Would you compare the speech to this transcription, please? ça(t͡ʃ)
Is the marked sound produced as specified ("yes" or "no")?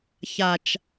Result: yes